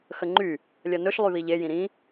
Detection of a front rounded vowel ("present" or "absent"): present